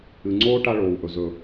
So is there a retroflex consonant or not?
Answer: yes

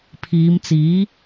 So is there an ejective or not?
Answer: no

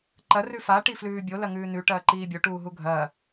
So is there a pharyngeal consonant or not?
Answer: no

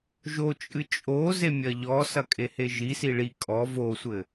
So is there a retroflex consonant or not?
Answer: yes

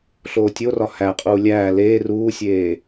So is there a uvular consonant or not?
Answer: yes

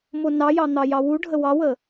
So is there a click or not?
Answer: no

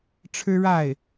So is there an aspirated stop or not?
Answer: yes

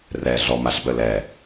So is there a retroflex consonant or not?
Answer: no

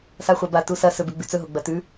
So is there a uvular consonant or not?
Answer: yes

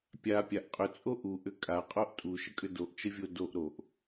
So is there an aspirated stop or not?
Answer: no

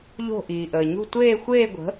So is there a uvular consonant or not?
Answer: no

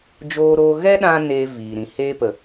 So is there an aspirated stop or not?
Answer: no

